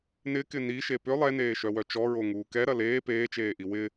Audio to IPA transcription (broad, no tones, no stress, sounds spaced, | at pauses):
n ɪ k ɪ n i ʃ e p ʏ lˠ ɛ n eː ʃ œ w œ t͡ʃ ɔ ɹ o ŋ uː k ɛ ɾ ɐ l eː p eː t͡ʃ eː ʔ i w ɪ